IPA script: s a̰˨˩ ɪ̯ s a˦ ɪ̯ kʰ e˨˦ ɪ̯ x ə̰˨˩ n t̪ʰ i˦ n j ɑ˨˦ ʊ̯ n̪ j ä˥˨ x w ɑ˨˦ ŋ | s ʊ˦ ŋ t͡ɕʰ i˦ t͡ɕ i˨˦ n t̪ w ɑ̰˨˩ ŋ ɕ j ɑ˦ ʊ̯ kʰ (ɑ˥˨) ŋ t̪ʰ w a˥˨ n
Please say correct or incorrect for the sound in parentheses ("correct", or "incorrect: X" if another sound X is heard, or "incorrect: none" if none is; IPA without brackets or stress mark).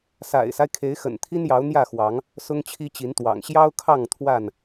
correct